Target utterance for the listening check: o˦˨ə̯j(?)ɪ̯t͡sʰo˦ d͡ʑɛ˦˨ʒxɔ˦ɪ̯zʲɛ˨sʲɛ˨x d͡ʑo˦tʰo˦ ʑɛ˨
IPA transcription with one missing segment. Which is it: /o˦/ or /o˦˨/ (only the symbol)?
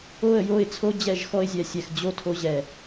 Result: o˦˨